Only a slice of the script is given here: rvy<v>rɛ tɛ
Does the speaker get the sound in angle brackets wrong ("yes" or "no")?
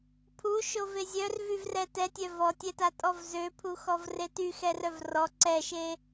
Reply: no